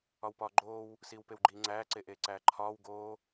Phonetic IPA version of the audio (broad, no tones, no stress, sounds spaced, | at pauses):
ɒ w p ɒː ɡ͡ǃ oː w | s iː w p e w ɡ͡ǃ iː ŋ͡ǀ æː ǀ e ʔ eː ǀ æː ǃʰ ɒː w ɡ oː